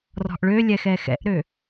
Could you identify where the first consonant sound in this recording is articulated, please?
alveolar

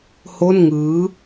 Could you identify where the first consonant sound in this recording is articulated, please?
glottal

